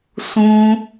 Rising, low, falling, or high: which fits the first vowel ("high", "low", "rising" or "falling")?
high